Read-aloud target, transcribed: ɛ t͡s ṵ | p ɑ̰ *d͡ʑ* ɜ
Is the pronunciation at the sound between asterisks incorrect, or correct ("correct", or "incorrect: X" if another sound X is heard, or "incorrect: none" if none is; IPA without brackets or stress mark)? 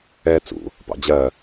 correct